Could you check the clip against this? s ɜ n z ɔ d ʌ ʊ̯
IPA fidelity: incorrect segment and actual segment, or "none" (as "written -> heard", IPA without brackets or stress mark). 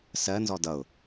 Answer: none